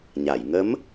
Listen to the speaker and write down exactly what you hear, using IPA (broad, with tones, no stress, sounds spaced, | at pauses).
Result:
ɲ a˨˩˨ j ŋ ə˧˥ m